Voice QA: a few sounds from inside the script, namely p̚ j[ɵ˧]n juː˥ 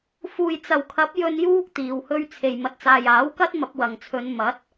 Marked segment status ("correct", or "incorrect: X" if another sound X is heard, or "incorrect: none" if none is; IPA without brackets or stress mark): correct